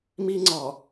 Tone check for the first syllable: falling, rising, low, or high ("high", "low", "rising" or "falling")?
high